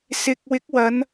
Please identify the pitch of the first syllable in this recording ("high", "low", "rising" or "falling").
low